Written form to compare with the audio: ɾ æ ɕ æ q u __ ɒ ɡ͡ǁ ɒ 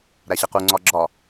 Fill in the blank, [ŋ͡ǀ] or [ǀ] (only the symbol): ŋ͡ǀ